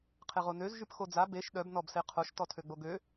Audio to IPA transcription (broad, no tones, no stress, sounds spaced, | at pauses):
qʰ e ʁ o n ø z ʒ y p x o d͡z a b e ʃ ɗ œ b n ɔ b s e qʰ o ʃ t ɔ tʰ ø ɡ͡b o ɡ ø